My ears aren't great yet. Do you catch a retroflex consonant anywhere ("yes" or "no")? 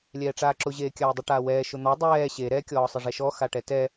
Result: yes